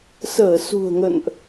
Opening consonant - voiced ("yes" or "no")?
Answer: no